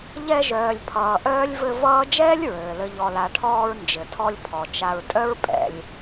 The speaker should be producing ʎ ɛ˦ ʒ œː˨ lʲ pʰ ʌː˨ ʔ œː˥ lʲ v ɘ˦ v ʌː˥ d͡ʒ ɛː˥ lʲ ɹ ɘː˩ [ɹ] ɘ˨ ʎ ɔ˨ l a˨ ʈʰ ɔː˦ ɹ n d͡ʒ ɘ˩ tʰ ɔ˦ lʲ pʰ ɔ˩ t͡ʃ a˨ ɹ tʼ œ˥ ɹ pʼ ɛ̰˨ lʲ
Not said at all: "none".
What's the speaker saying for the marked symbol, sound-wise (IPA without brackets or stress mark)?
l